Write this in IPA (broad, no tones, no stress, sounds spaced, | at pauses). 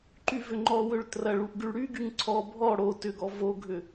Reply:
ǃ y v ʏ ŋ͡ǃ ɔ w ø ɭ t r ɐ ɭ u ʔ ɡ y ɭ ɽ y ɡ y ŋ ǀʰ ɔ bʱ ɔ ɽ o t ʏ ɡ ɔ v o ɡʱ ʏ